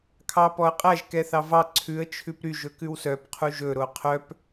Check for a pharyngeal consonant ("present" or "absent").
absent